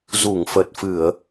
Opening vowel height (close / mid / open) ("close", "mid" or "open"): close